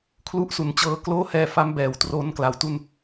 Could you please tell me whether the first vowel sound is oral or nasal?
oral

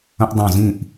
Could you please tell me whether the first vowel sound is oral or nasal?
nasal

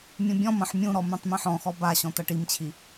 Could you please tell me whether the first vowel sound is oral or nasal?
nasal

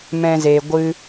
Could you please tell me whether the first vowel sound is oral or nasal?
nasal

